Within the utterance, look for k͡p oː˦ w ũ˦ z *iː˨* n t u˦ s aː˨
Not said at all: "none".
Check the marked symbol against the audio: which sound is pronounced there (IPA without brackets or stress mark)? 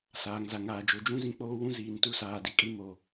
iː˨